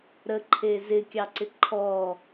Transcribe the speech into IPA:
ɾ ə ǃʰ e z ɪ kʲ ɑ ǀ ɪ ǃʰ ɔ

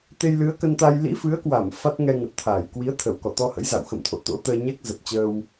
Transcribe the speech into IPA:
t̪ e˧ j l ɨ˨˦ ə̯ k ə˧ n t̪ a˧ j l ḭ˧˥ f ɨ˨˦ ə̯ k w a˧˩ m f a˦˥ t̚ ŋ ɛ˧ ŋ ə˨˩ t̚ t̪ʰ aː˧˩ j k w i˨˦ ə̯ t̪ʰ ə˧˩ w k ɔ˧˩ t̪ ɔ˧ h ə̰˧˥ j z a̰˧˨ w x ə̰˧˨ m t̪ʰ o̰˧˨ t̪ o̰˧˥ t̪ əː˧ ɲ ɛ˦˥ k̚ z ə˨˩ p̚ t͡ɕ əː˧ w

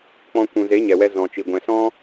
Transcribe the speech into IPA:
k͡p ɔ̃˧ kʷ ũ˨ z e˨˦ ɲ ɛ˨ w ɛ˧ z ɔ̃˨ t͡ʃ i˨ ɡʷ ɛ̃˨ s ɔ̃˦

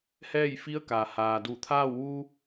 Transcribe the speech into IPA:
h ɛː˥˨ j f i˧˥ ə̯ k a˩ h aː˩ d u˧˩ t̪ʰ aː˥˨ w ʋ u˧

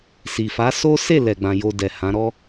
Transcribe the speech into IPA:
s i˨ f a˨˦ s o˦ s e˦˨ l ɛ˨ ɡ͡b ã˨ j o˧ d ɛ˨ h ã˨˦ ɾ ɔ˦

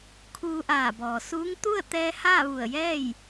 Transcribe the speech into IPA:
kʰ uː˧ ʔ aː˧˩ b ɔː˩ s uː˧˥ ŋ t̪ u˥˨ ə̯ t̪ ɛː˧ h aː˥˨ ʋ u˧˩ ə̯ j ɛː˥˨ j

